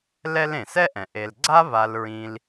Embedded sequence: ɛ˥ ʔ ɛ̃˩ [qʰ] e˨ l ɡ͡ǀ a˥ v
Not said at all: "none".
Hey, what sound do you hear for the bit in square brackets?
ʔ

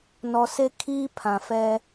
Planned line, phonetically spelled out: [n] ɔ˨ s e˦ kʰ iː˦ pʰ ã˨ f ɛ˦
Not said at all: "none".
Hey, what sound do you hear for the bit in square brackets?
n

